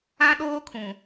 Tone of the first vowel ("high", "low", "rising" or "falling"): high